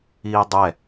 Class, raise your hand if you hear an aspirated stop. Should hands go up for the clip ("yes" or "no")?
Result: no